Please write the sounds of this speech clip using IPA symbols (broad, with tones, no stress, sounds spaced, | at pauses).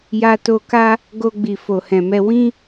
j a˧ t o˧ k a˦ | ɡ o˧ ɡ͡b i˨ f o˨ h ɛ̃˨ m ɛ˧ w ĩ˦